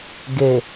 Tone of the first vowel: low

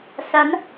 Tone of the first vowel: rising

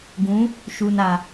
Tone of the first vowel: rising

